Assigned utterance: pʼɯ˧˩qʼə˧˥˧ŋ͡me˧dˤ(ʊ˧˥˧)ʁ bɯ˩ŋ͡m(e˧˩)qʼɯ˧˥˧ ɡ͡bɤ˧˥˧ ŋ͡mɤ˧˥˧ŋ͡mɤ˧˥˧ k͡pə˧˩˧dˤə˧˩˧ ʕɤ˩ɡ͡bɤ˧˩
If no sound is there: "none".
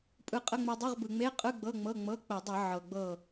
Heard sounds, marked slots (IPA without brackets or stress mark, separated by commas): ɯ˧˥˧, e˧˥˧